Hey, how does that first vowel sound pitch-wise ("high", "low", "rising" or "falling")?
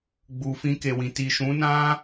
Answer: low